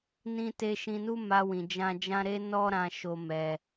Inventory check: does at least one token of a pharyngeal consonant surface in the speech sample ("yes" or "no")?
no